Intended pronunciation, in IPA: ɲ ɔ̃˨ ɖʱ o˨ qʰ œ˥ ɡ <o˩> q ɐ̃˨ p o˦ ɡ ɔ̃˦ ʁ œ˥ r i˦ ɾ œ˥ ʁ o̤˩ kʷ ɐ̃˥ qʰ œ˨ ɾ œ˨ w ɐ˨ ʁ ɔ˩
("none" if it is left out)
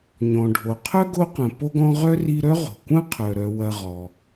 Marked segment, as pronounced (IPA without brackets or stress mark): o˦